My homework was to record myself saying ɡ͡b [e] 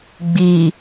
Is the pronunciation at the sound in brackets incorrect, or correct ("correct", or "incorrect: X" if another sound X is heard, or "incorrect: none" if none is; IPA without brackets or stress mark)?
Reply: incorrect: i